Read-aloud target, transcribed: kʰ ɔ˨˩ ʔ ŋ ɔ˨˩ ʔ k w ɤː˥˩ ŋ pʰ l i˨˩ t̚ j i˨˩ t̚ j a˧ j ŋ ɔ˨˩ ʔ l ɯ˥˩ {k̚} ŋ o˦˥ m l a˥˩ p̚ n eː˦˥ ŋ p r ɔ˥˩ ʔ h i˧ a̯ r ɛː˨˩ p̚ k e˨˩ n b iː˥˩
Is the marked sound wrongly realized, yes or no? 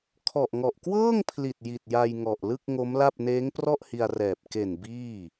no